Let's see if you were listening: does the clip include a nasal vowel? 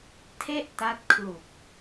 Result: no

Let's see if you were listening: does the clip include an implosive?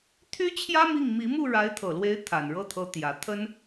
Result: no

